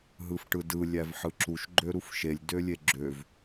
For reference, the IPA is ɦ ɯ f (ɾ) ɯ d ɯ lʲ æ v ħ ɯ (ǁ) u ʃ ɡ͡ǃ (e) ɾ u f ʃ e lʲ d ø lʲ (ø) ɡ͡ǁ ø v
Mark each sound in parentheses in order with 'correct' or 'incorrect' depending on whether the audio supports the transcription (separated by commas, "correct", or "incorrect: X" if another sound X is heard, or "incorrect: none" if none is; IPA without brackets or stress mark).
incorrect: ʈ, correct, incorrect: ø, incorrect: e